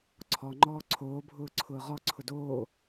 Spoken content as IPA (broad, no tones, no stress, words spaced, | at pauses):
ǀʰɔŋ͡ǃɔː ǀʰoːbʱʊːǀʰʊː ʁɔǀʰʊ doː